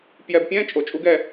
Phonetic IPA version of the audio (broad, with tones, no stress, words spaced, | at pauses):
pjɛ˧bpʲɛ̃ː˦ t͡ʃʼo˧t͡ʃʼu˦ɡ ɛ˧